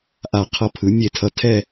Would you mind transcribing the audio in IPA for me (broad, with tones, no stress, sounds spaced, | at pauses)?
ʔ a˧˩ qʰ ʌ˧ pʰ ɯ˩˧ mʲ e˧˩ tʰ ʌ˧˩ tʰ ɛ˥˧